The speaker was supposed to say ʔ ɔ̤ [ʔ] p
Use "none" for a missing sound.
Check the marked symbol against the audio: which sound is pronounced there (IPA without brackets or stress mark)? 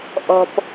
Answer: none